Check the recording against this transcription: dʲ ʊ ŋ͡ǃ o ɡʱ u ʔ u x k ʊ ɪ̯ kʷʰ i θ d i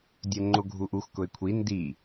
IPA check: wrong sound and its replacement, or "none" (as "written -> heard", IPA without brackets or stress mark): θ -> n